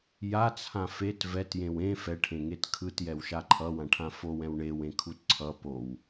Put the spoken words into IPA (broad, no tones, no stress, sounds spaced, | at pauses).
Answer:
j a t͡sʰ ã f e t v ɛ t j ẽ w ẽ f ɛ ʈʰ ẽ ŋ e t kʰ ɯ t j ɛ w ʃ a ǃʰ ʌ w ã ʈʰ ã f o w ɛ̃ w ɳ e w ẽ kʰ u t ǀʰ ʌ p o w